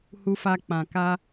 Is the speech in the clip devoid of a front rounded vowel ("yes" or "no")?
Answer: yes